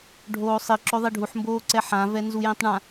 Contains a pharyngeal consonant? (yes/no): yes